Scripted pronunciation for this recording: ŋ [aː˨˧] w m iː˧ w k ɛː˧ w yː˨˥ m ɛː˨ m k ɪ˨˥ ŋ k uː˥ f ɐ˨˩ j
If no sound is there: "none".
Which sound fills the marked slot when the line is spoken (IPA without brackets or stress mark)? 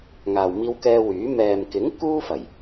aː˨